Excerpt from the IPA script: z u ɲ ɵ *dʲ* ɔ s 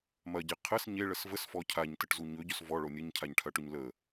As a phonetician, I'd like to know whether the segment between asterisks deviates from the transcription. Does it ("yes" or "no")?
yes